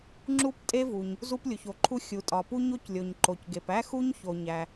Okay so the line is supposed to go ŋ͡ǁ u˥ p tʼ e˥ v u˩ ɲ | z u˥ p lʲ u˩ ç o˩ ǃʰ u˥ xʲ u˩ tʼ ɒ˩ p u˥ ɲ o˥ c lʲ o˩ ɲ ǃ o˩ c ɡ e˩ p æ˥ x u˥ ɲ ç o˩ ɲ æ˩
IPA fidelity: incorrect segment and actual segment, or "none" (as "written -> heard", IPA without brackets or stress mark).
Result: none